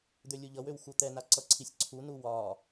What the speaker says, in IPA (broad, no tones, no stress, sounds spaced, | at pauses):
d̪ ø lʲ u ʎ ʌ w ø w x u t̪ ɛ n a ǀ ʌ ǀʰ i sʲ ǀʰ u n u w ɒ